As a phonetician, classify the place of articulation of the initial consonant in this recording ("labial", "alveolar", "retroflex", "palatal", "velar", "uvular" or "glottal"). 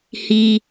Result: glottal